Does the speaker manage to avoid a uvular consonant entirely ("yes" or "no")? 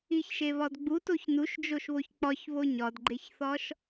yes